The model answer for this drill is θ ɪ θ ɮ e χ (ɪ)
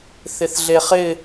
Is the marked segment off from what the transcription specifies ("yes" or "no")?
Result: no